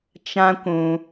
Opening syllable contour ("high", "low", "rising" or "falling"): high